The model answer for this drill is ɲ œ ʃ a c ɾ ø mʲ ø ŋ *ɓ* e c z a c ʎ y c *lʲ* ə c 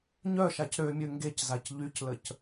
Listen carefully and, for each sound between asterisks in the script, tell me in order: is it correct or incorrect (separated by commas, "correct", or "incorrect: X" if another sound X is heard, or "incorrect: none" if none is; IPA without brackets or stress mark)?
incorrect: ɡ, incorrect: l